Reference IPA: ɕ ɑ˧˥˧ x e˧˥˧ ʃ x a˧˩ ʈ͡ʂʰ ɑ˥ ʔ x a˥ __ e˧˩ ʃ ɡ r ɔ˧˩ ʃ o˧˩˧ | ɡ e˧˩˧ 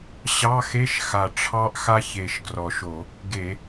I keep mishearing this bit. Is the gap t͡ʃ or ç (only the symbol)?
ç